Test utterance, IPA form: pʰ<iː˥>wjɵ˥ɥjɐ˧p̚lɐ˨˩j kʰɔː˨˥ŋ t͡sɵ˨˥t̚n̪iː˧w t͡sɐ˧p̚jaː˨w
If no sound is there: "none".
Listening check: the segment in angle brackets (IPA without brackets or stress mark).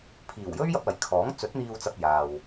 iː˨˩